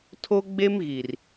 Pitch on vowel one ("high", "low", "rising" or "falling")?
high